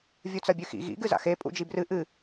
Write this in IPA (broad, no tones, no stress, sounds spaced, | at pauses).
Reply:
vʲ u t͡s ɐ bʲ ʉ x ḭ ɣ ḭ ɡ ɨ z a̰ x e pʼ ṵ d͡ʒ i b r ɨ ʔ ɨ